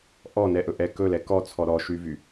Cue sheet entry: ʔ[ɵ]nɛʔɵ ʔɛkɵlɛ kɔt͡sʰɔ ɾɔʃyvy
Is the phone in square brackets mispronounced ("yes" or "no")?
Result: yes